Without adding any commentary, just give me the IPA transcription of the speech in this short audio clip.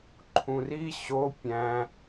ǃʰ ũ r i ɕ o pʲ æ̃

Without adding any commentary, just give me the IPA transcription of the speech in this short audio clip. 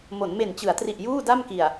m o˩˦ n m e˨˩ n t͡ɕ ɯ˩˦ a̯ t r i˨˩ ʔ j uː˥˩ d a˥˩ m k i˨˩ a̯

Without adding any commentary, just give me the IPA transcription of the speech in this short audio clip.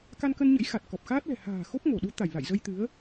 k a˧ n k ə˧ n ɲ ə̰˧˥ j x a˨˩ t̚ k ɔ˨˩ p̚ x aː˦˥ t̚ l ɛ̤˨˩ h a̤ː˨˩ x o˦˥ p̚ ŋ o˧˩ ɗ u˨˦ t̪ a˧˩ j l a̰˧˨ j z ə˧ j t̪ ɨ˨˦ ə̯

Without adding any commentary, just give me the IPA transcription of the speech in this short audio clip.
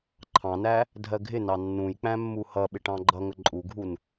ǃʰ ɑ̃ n æ | dʱ ɜ ɡʱ ɪ n ɑ nː ũ j k͡p æ̃ mː u h ʌ ɓ ɪ ʈ ɑ̃ ɡ͡ǃ ʌ ŋ ə ǃʼ u ɡʱ u n

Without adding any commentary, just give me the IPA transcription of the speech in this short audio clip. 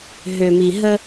ɦ ø˥ m i˥ ɦ ə˥

